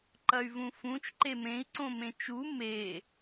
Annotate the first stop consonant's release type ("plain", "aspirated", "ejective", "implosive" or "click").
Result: click